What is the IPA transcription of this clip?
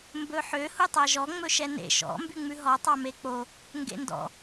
mbɵħø hutˤæʒɔ ŋ͡mɵʃɛnḛ ʃɔ̰ mbyŋ͡mʉɦɔ tˤɑmek͡po | ŋɡḛndɔ̰

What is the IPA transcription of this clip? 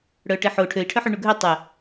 ɽœʈeħo ʈʰøi̯ʈʰœħy ɳuɡʱø tˤə

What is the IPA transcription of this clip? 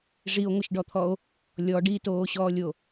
ʐio̯ŋʷɪʃɖɔt̪ʰɔo̯ | lʲɔɖ itoːɕɔːlʲo

